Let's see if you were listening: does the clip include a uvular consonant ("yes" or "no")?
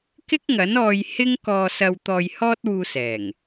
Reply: no